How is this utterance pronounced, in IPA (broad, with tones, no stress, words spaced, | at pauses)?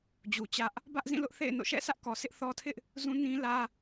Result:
d͡ʑu˨t͡ɕä˦ʔ | bä˦ʔzĩ˦˨ lʊ˦ʔθḛ˦˨ɪ̯no̰˦˨ ʃɛ̰˦˨sä˦ʔkɔ˨sɪ˦ʔ θɔ˦ tʰɪ˦ʔ | zũ˦nĩ˦lä˦